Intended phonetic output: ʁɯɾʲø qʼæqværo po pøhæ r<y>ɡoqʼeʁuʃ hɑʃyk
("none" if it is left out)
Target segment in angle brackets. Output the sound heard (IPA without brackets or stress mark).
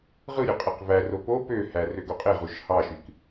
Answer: ø